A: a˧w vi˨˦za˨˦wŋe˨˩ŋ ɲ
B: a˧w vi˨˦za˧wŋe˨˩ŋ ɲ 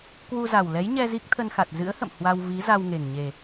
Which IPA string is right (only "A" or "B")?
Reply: B